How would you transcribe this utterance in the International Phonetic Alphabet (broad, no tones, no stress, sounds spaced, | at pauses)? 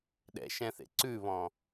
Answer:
ɗ ɛ̰ ʃ ɛ̃ θ ḛ ǀ ʉ β ɔ̃